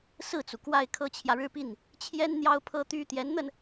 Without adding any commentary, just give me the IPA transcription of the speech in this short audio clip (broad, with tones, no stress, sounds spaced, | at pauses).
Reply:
s ɹ̩˥˩ t͡s u˩ k w a˥˩ ɪ̯ kʰ ɤ˥ t͡ɕʰ j ä˨ ɻ ɻ̩˥˧ p i˥˩ n | t͡ɕʰ j ɛ˥ n n̪ j ɑ˥ ʊ̯ pʰ ɤ˥ t̪ y˥ t̪ j ɛ˧˥ n n̪ ə˧ n